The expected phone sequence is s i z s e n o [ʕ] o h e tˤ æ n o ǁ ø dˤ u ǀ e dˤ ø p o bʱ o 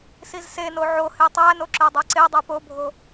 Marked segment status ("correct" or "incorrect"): correct